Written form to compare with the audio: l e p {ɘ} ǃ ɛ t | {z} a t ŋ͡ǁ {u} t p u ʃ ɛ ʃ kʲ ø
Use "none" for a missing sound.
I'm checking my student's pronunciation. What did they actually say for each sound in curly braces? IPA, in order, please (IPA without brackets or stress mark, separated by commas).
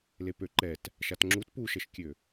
ø, ʃ, u